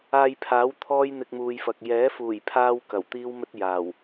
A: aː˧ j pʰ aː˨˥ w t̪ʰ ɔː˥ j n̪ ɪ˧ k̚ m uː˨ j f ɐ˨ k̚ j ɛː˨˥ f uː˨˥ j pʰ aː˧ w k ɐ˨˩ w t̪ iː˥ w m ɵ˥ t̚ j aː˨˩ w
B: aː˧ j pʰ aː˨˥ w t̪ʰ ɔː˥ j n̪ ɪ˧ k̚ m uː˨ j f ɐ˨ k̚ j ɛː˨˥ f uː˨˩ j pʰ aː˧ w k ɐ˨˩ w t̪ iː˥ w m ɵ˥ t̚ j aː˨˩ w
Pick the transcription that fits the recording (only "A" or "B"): B